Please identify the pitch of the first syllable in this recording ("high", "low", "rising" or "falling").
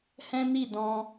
high